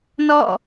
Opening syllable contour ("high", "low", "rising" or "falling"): falling